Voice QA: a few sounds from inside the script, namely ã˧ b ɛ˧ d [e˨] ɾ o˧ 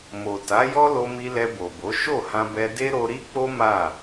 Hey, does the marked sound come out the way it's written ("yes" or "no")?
no